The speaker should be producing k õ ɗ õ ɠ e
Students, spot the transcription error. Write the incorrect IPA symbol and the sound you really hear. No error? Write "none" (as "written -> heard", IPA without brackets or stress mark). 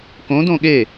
ɗ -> d